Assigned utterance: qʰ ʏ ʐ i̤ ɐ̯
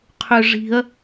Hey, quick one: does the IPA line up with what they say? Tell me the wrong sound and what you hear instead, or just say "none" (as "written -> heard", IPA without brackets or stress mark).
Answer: none